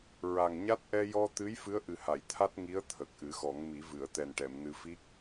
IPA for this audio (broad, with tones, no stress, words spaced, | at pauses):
ɹa˨˩ŋɲa˦˥t̚ ʔɛ˧jɔ˧t̪ɨ˧˥j fɨ˧˥ə̯ʔɨ˨˩ha˨˩˨j t̪ʰa˦˥t̚ŋi˧˥ə̯ t̪ʰə˨˩k̚ʔɨ˨˩˦xɔ˨˩˦ŋmi˨˩˦ vɨ˨˩˨ə̯ t̪ɛ˨˩nʈɛ˨˩˨m nɨ˧fi˦˥k̚